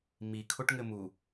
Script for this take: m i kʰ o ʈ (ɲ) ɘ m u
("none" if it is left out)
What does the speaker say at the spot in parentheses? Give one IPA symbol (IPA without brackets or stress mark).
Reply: ŋ